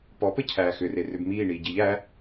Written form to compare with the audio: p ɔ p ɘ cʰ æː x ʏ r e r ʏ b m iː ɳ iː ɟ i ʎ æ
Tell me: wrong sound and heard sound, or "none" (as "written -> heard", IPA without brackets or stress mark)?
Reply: none